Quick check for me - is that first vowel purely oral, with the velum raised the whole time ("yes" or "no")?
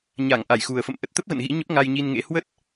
yes